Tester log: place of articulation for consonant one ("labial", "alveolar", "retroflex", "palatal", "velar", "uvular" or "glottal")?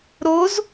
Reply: alveolar